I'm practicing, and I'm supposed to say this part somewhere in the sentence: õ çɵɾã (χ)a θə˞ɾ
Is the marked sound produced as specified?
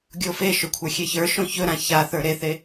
no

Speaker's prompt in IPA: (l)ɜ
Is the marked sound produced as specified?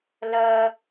yes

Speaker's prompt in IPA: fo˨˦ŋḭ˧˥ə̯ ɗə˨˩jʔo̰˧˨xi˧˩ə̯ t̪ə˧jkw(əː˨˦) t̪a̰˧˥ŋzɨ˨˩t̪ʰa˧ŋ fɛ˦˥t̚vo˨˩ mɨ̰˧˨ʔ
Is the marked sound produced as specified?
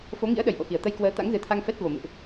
yes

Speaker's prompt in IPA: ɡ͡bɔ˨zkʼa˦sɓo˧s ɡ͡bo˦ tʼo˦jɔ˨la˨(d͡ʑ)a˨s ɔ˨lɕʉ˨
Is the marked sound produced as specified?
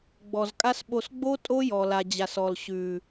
yes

